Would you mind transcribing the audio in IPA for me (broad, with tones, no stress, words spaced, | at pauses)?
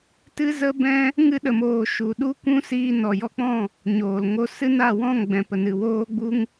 tɨ˦zə˦bɛ̃˦ | ŋɨ˧ɗə˨moː˨ ʃu˨ɗu˦ kʷũ˦siː˧ nɔ˨jɔ˧k͡pɔ̃˦˨ | ɲoː˨l ŋo˧sɨ˦na˦˨ wɔ̃˦˨ŋɡ͡bɛ̃˨ pə˨nɨ˨woː˦ɡ͡bu˦ŋ